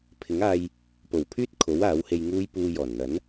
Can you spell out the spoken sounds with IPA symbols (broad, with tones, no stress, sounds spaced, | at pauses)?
pʰ ɪ˨˥ ŋ aː˧ j | p o˨˩ w pʰ yː˥ t̚ kʰ o˨˥ w aː˨˥ w h e˧ j ŋ uː˥ j p uː˧ j ɔː˨˩ n n̪ ɐ˨˥ n